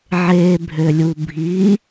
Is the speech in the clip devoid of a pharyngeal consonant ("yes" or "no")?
no